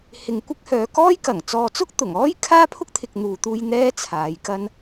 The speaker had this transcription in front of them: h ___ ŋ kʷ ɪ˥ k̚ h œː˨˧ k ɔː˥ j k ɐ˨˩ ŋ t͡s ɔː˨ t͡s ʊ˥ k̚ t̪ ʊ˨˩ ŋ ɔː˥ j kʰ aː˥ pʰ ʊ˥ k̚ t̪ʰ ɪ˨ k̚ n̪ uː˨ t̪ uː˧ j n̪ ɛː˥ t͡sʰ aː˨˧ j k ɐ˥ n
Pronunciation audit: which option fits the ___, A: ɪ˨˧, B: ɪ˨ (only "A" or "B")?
B